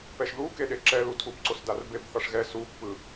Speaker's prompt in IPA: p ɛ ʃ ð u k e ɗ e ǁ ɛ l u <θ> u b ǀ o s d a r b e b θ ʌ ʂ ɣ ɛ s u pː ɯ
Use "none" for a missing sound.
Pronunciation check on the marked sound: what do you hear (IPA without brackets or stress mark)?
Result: tʰ